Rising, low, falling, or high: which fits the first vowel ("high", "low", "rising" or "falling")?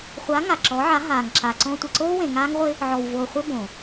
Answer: rising